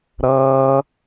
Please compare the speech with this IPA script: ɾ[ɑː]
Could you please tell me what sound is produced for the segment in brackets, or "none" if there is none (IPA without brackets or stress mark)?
ʌː